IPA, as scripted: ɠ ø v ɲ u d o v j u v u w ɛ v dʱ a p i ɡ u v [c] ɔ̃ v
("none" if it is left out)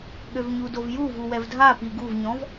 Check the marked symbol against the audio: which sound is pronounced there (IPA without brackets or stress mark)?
ɲ